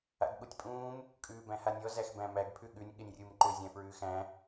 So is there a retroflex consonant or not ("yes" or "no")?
no